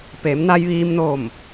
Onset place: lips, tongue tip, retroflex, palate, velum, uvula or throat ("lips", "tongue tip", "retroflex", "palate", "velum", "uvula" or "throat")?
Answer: lips